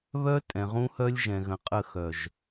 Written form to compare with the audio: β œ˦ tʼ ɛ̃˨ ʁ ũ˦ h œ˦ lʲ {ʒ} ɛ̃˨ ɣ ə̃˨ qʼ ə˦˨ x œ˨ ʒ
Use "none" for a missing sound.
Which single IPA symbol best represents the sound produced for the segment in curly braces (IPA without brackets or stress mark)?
ʒ